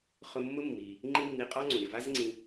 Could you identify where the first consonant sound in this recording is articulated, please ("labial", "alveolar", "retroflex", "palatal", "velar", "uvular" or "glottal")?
uvular